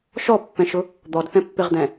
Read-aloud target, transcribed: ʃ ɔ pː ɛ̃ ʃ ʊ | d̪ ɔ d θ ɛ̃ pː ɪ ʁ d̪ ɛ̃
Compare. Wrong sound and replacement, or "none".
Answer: none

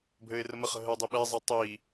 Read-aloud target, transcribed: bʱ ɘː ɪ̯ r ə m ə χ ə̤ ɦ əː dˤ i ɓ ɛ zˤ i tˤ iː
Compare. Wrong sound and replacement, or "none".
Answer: none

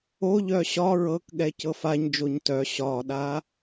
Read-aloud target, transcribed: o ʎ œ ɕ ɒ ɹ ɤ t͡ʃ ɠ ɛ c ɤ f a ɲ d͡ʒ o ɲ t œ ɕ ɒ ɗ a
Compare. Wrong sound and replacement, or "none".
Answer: t͡ʃ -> k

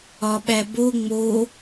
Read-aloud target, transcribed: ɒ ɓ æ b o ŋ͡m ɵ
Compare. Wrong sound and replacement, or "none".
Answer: ɵ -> o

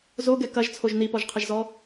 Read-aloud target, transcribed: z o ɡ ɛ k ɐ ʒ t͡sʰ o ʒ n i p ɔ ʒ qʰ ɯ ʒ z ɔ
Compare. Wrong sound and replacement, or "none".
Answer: ɯ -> ə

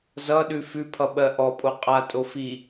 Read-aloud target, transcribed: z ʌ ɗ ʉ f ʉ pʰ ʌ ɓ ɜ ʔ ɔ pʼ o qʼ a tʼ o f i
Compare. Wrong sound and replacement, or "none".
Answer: none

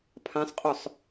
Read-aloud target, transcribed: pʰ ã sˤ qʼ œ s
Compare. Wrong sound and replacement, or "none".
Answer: s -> sˤ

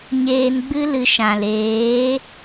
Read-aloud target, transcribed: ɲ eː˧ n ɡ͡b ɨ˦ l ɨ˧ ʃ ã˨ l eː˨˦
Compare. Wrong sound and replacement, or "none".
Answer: none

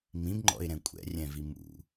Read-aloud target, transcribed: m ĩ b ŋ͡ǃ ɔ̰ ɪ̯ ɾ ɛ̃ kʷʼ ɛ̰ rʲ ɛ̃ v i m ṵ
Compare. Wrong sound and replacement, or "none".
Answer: none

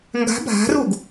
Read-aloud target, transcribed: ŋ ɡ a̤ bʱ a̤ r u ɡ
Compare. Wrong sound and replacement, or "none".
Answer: none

